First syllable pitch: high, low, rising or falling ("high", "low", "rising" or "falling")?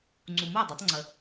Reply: low